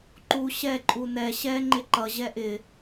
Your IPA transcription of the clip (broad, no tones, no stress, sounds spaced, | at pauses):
ǃ u ɕ ɛ ǃʼ u n ɛ ɕ ɛ ŋ͡ǃ ɪ ǃ ʌ ʑ ɛ ʔ ɪ